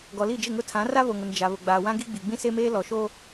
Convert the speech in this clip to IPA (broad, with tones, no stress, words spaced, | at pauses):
ɡɔ˨li˦˨d͡ʒɪ˦˨ŋʊ˦ tʰã˨˦ra˦βo˨ŋʊ˨n d͡ʒa˨βʊ˨ ɡ͡baː˨ wã˦ɡi˦ ɡ͡bi˨ɡ͡bĩ˦se˦meː˦ lɔ˨ʃoː˦